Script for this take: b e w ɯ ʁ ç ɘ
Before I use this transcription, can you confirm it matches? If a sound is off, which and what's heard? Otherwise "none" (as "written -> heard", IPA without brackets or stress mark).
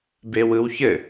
ʁ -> w